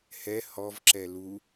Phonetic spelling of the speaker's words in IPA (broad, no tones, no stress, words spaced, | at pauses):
hɛ hɔvǁɛ lu